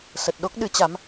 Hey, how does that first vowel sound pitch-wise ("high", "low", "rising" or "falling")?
low